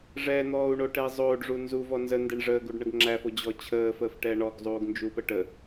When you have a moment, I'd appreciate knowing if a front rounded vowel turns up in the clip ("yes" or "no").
no